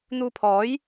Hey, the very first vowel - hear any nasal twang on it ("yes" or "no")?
no